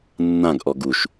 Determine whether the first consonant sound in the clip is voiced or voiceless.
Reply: voiced